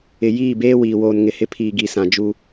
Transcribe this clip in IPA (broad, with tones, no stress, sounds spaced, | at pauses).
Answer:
ɪ˨ j iː˦˨ b eː˦ w iː˨ w oː˨ n ŋ ɪ˨ h ɪ˦ pʰ iː˨ ɡ i˨ s ã˨ d͡ʒ u˦